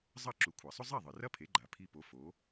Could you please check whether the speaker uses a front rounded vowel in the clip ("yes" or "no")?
no